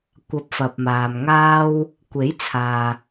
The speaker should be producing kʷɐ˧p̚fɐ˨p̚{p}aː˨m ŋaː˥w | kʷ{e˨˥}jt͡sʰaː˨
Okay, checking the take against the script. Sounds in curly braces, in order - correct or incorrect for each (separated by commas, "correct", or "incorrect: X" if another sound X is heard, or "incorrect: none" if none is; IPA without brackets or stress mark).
incorrect: m, correct